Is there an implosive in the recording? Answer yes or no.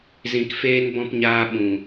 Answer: yes